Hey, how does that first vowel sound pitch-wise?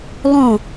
falling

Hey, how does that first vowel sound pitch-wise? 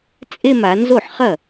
falling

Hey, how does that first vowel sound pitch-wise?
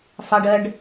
high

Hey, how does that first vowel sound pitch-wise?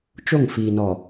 falling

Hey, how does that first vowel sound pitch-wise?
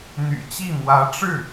low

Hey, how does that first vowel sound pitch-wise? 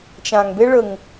low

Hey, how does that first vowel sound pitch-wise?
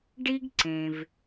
high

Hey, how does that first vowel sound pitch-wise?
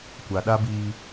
low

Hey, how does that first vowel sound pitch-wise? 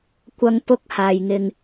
high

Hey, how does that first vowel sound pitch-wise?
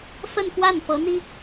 falling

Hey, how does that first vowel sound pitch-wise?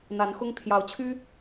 rising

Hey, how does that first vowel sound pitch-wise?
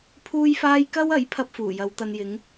high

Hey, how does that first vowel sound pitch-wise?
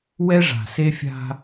high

